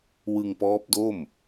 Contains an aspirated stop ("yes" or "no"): no